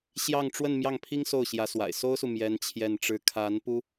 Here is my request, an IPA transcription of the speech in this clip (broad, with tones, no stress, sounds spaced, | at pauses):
ɕ j ɑ˥˧ ŋ ʈ͡ʂ w ə˥˧ n m j ɑ˥˩ ŋ pʰ i˥ ŋ s o˥˩ ʊ̯ ɕ j ä˧˥ s w a̰˨˩ ɪ̯ s o˥ ʊ̯ s u˨ m j ɛ˥ n t͡ɕʰ j ɛ˥˧ n ʈ͡ʂ ɻ̩˥˩ kʰ a˧˥ n p u˥